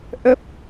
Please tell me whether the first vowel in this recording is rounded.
no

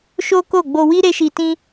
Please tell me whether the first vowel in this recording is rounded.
yes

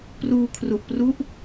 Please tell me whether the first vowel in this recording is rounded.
yes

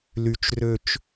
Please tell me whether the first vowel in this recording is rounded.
yes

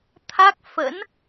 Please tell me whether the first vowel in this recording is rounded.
no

